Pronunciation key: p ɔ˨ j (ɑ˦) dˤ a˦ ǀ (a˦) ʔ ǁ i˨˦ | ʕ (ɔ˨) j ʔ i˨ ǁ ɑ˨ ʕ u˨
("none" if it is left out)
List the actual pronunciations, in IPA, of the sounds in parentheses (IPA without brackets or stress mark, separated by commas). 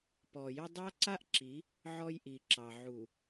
ə˦, a˦, ɔ˦